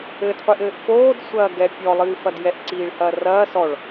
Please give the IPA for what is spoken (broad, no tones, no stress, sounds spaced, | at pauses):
ɘ d qʷ i ʔ ɘː ʔ f oː d sʷ ɐː ɡ ɛ pʲ ɔ lˠ ɨː f ɐ d j ɛ ʔ ǀ iː ɭ h ɐː r ɐː s ɔ ɭ